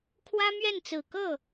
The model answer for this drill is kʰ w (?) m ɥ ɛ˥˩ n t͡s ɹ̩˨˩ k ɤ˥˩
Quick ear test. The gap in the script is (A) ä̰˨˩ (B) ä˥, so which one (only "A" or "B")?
B